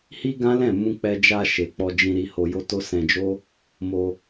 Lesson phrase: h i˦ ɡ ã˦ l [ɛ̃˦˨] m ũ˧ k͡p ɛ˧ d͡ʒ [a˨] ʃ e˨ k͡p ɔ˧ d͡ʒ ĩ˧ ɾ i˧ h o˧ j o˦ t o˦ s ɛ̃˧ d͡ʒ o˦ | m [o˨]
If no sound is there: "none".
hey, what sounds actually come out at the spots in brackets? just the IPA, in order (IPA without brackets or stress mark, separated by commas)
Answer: ɛ̃˦˨, a˧, o˧